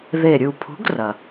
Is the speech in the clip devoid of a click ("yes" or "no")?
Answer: yes